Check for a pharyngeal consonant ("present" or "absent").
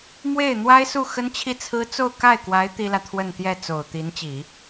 absent